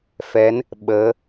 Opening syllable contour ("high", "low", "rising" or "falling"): rising